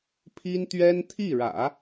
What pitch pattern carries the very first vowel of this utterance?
high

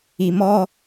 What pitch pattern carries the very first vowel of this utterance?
low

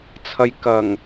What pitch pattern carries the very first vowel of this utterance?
low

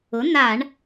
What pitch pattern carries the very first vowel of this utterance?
rising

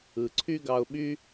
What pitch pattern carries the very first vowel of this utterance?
low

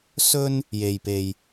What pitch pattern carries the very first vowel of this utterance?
high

